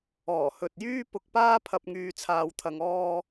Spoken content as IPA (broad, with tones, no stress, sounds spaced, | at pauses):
ɔː˨˩ h ɵ˨ t̚ j yː˥ p ʊ˧ k̚ p aː˥ pʰ ɐ˨ p̚ ŋ yː˨ t͡sʰ aː˨ w t̪ʰ ɐ˨ ŋ ɔː˧